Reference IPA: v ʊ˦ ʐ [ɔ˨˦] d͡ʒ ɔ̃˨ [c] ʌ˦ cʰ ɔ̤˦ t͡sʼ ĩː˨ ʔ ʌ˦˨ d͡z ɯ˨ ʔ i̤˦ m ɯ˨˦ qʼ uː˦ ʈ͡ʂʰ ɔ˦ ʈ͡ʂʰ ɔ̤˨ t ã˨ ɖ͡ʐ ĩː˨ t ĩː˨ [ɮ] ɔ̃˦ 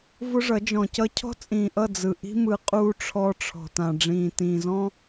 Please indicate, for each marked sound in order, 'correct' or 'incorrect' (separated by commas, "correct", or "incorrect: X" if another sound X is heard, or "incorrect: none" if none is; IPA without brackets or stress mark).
incorrect: ʌ˨˦, correct, incorrect: z